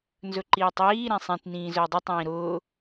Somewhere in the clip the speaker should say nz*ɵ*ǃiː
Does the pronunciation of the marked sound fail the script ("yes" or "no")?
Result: no